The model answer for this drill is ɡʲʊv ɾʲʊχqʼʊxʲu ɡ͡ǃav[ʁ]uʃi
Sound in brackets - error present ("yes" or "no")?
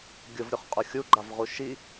no